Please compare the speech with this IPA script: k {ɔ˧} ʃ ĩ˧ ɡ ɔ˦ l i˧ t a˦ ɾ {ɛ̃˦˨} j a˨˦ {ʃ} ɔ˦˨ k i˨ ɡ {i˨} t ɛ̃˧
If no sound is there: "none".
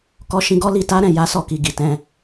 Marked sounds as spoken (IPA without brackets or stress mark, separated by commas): ɔ˧, ɛ̃˦˨, s, i˨